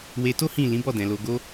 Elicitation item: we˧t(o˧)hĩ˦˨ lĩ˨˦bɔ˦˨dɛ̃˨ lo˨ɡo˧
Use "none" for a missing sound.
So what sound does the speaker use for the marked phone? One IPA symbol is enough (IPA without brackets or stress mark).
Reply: o˦